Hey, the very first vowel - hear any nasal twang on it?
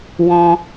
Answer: yes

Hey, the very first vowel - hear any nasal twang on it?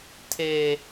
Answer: no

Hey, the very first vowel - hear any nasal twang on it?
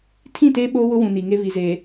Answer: yes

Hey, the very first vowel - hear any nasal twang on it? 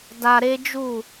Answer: no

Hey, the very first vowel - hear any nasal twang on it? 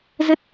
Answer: no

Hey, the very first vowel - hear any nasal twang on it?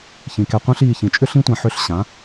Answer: yes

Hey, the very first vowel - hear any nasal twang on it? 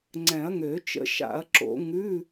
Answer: yes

